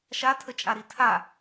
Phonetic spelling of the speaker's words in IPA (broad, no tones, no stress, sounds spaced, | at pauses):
ʃ a tʰ ə t͡ʃʼ a ɾ i tʰ a